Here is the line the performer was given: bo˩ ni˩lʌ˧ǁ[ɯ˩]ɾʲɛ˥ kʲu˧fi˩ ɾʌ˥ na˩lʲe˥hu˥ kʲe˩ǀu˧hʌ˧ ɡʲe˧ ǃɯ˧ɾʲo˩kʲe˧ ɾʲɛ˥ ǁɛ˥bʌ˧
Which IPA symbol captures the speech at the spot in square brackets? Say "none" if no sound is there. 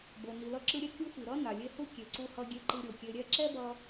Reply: ɯ˧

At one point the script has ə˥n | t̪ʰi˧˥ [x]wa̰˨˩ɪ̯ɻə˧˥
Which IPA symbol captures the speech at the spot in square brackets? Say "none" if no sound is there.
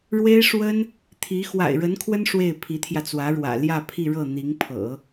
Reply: x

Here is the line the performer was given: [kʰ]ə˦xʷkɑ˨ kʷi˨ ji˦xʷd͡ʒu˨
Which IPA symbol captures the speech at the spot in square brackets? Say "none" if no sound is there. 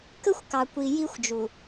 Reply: k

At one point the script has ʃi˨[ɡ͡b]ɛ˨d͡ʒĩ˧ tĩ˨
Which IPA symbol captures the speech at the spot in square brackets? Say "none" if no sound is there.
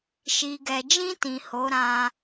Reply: ɡ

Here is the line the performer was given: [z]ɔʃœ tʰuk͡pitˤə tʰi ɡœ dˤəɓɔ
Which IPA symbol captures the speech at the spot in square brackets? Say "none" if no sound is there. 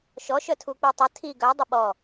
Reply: ʃ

